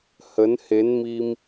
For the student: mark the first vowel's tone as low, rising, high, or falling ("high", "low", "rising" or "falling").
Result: rising